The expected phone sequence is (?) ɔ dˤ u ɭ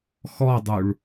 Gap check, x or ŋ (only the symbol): x